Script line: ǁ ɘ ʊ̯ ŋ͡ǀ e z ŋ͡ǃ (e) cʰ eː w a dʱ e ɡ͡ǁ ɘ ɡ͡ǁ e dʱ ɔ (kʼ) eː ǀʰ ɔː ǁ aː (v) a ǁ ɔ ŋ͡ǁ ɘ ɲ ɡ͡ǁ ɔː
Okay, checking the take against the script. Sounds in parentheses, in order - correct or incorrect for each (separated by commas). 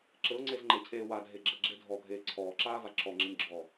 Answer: correct, incorrect, correct